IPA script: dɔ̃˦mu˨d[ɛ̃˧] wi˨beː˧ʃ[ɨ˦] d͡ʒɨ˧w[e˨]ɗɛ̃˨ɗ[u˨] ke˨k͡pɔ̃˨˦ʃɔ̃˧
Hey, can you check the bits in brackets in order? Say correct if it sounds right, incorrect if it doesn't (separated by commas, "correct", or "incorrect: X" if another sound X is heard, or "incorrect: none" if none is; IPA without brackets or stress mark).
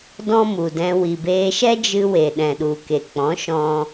correct, incorrect: ɛ˦, correct, correct